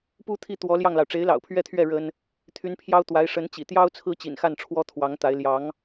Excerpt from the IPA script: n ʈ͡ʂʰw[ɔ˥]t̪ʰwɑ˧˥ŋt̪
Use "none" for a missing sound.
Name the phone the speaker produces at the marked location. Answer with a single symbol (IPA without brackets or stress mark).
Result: ɔ˥